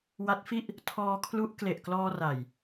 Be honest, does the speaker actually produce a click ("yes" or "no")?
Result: no